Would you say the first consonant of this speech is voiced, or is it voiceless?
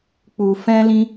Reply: voiceless